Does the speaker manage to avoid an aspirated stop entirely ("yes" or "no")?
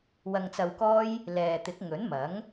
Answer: yes